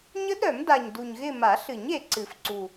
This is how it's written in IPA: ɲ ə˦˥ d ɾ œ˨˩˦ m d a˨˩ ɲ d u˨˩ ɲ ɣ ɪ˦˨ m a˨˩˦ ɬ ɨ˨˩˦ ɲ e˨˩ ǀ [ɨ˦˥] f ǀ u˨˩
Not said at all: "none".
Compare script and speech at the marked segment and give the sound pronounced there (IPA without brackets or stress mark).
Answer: ɨ˨˩˦